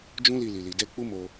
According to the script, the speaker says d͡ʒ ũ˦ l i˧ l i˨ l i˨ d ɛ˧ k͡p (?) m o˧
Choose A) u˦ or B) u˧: A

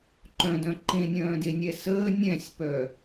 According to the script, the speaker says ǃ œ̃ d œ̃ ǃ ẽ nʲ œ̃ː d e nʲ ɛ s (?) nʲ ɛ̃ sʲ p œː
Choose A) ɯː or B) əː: B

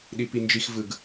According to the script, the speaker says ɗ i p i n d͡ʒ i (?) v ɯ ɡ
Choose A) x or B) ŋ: A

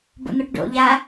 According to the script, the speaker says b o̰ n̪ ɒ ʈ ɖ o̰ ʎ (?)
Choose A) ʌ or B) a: B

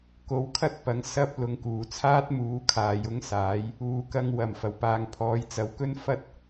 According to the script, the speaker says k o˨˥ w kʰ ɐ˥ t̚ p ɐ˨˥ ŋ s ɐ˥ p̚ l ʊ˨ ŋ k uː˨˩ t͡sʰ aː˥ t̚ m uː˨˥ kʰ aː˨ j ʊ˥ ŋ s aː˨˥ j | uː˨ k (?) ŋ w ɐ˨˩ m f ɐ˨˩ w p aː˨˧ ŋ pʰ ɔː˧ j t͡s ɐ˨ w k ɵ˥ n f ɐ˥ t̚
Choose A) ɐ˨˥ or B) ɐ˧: B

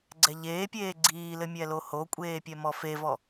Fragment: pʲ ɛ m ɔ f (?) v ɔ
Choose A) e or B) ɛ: A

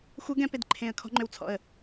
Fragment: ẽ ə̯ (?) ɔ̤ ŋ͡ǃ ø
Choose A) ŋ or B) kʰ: B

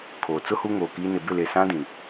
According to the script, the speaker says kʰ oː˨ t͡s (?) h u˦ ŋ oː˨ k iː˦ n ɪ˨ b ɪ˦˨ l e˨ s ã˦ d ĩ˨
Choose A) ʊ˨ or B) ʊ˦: B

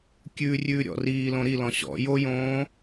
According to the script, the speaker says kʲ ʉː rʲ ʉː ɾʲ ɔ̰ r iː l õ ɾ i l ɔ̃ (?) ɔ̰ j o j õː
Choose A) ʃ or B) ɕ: B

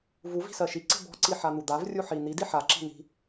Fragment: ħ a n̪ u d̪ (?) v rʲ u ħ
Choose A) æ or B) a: B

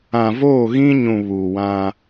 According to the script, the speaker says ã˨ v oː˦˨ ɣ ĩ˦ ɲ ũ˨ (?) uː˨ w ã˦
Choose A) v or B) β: B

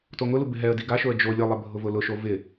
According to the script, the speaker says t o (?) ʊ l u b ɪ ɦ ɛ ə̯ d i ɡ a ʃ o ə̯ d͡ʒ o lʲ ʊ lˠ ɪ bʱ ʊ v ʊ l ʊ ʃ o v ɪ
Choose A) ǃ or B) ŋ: B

